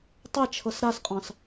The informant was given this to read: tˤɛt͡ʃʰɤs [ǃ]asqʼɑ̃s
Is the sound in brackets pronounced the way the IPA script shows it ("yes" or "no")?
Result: no